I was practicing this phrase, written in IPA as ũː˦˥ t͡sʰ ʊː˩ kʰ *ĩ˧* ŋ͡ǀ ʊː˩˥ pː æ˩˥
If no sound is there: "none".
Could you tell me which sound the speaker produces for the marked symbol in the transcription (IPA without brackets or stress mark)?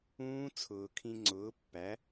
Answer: ĩ˧